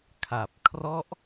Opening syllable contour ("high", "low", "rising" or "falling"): low